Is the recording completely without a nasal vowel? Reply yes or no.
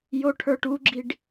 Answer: yes